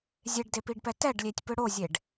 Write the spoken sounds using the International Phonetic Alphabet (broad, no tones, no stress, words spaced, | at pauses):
zʲeɖdepiɖpɛ tɛɖlʲetʲpɯ ɽozʲeɖ